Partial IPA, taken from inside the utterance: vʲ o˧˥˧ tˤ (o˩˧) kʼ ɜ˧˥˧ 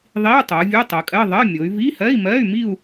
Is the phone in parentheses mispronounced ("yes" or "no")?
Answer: yes